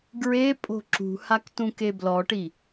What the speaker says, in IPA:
ɡɹepʼo̤ ǁṳhak tũkeblɔʈi

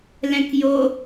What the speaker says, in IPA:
lɛ̃kjo

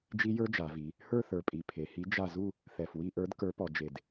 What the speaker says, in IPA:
d͡ʒi˦˥jə˞˦˥d͡ʒa˩˧vi˩˧ | hə˞˥˧θə˞˨˩pʼi˨˩ pʰe˩˧hi˨˥ d͡ʒa˥˧ zu˥˧ | θɛ˨˩fwi˥˧ ʔə˞˨˥d kə˞˨˥pɔ˩˧ d͡ʒe˨˩d

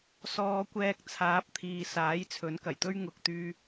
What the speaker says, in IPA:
sɔː˨˧kʷɛː˧k̚t͡sʰaː˨˥p̚ t̪ʰiː˨ saː˨˥jt͡sʰɵ˨˥nkɐ˨˩jt̪ɵ˥ɥ ŋʊ˨k̚t̪yː˧

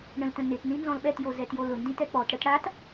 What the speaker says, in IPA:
ɳə̃ltə̃ nɪt nĩnzɔ̃lɓɛtjo zɛtjolʊndĩt ɛk͡pɔtɽət ɽat

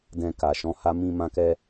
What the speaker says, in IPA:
dɛ̃˧ka˨ʃɔ̃˨˦ha˦ mĩ˧mã˧kɛ˧

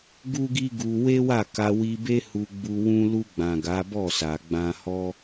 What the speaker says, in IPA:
ɡu˦ɡi˦ɡu˧ we˦wa˦˨ka˧ wi˧be˦ hu˧ɡ͡bu˧ wũ˦ lu˧ɡ͡bã˨ ɡa˨˦bɔ˦˨sa˨ɡ͡bã˧ hɔ˦

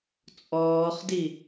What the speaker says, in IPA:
t͡sʼɔːχdi

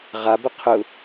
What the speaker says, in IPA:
ʁabə qʰʊ

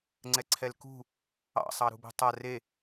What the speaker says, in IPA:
ŋ͡ǀɛǀʰɛlkṳ | ɑ̰sˤɑɾṳbṳ tˤa re

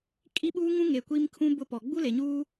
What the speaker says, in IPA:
kʼi˦ɓuː˦ŋũ˦ ŋe˨kʷi˦mkʰũ˦ bʊ˦pɔ˨ ɡ͡bu˦le˨ɲuː˦

